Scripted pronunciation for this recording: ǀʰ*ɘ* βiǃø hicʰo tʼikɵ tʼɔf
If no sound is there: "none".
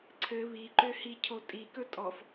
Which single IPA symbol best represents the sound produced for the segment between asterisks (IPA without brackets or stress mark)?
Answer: ɘ